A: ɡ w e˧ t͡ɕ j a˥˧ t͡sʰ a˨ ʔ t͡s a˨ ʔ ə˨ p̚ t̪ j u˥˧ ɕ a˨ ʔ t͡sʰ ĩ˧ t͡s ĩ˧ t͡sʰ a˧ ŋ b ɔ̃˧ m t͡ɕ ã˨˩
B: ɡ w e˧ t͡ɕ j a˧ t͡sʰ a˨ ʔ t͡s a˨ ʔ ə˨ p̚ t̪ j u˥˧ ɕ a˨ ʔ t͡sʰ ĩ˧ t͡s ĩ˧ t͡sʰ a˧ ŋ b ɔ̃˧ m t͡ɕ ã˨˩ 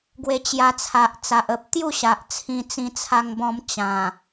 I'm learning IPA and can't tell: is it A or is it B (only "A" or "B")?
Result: B